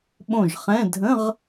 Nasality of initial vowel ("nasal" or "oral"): nasal